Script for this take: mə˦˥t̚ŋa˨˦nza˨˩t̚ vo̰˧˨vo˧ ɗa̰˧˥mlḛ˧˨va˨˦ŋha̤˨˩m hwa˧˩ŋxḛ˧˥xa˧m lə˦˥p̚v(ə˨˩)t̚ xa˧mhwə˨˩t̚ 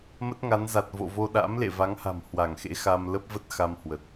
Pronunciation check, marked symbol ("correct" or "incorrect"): incorrect